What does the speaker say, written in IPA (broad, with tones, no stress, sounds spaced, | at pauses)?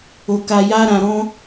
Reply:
o˨ k a˨ j a˧ ɾ ã˨ ɾ ɔ̃˧